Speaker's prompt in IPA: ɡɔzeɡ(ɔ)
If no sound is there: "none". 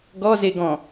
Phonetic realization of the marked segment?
ɔ̃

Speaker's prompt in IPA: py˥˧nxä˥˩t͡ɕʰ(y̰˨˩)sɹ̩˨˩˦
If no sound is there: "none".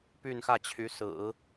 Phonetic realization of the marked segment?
y˧˥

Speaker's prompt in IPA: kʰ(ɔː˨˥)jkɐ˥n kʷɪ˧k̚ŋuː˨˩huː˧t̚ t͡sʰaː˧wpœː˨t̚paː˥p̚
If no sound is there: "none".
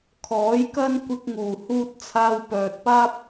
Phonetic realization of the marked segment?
ɔː˨˥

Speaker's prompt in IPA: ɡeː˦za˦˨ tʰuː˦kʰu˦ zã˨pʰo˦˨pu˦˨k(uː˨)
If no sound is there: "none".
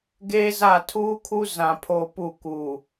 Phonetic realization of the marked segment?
uː˨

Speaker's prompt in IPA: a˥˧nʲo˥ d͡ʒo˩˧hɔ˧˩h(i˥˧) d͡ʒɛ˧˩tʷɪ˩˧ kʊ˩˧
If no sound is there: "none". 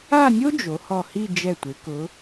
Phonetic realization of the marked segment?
i˥˧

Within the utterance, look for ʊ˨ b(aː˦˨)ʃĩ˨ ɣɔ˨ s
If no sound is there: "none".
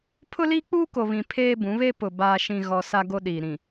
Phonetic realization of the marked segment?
aː˨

